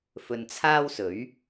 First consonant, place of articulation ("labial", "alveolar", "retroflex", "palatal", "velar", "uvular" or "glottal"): labial